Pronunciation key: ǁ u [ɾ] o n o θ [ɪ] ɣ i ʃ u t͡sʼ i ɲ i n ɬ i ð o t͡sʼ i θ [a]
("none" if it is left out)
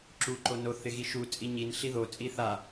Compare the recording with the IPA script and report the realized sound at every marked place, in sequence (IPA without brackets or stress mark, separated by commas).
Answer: ǃ, ɪ, a